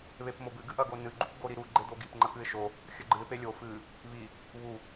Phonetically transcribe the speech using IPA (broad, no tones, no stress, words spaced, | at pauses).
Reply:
βepmobɨ ɡɨʔɐɡonɨ ɡ͡ǃupɡoɾiɾu ɡ͡ǃed̪oɡip ŋ͡ǃɐkɨɪ̯ʃo | xʲɐɡ͡ǃɨɪ̯ pelʲo fɨ | βi | βu